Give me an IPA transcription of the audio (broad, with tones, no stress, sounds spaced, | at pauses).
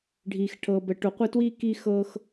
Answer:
ɖʱ iː˨ x ʈʰ ɤː˨ b ə˨ ʈ o˨ qʷ ə˦˨ t w iː˦ k i˦ x ɤ˦ x